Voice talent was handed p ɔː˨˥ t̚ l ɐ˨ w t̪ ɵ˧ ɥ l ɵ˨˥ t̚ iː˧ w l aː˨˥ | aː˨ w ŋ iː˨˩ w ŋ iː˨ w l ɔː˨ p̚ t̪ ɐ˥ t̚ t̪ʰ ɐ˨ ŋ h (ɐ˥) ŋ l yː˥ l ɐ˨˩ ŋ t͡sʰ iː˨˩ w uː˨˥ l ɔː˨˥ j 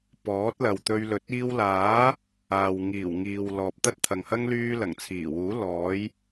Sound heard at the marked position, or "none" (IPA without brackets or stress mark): ɐ˥